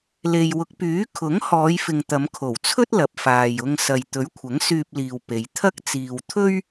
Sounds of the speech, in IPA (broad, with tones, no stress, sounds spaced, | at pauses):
l e˨ j w ʊ˨˥ k̚ p yː˨˥ kʰ ʊ˨˥ ŋ h ɔː˨˧ j f ɪ˨ ŋ t̪ ɐ˨˧ m kʰ o˨˩ w t͡sʰ ɵ˥ t̚ l ɐ˨ p̚ f aː˨ j ʊ˧ ŋ s ɐ˨ j t̪ ɵ˨˥ ɥ kʷʰ ɐ˨˥ ŋ s yː˧ p̚ l iː˨ w p e˨˧ j t̪ʰ ɐ˥ k̚ t͡s iː˧ w t̪ʰ ɵ˥ ɥ